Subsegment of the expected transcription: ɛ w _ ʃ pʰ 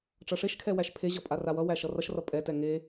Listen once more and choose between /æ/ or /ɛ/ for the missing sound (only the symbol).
æ